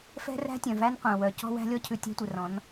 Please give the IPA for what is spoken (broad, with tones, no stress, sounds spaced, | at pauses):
f ɛ̤˦ r æ̤˦ tʲ œ̃˨ v æ˦ n qʷ ɛ̃˨ w œ˨ c ɔ̤˦ w æ̤˦ lʲ ɔ˦ cʰ ʉ˨ tʲ æ̤˦ tʷ ɛ˨ r ɔ̃˨˦ n